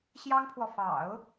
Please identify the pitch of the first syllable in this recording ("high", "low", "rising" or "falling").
high